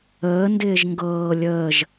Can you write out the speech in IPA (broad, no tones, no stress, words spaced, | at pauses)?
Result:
əːndɪːʒ ŋɡɤː lʲəːʒ